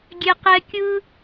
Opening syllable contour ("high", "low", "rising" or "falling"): low